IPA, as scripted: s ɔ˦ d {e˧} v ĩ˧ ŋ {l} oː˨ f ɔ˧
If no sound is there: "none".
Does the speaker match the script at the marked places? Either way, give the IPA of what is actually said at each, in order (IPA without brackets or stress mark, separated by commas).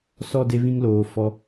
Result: e˧, l